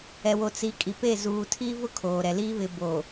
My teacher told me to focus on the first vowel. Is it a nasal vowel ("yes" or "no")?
no